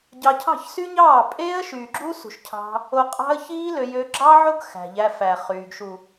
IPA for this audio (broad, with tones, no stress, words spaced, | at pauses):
ɟɑ˧cʰɑ̤˦˨çsy˦ɲɑː˦˨ pʼeː˦ə̯ ʃyː˨ɡ͡ǁu˦sṳ˨ʃcʰɑ̤˧ | o˧qʼɑ̤˦ə̯çiː˦lø˧ jø˧ ɡ͡ǁɑ˦ʕo˦ɡ xæ̤˨ʎæ˧ fæ˨χyː˨ɡ ʃu˨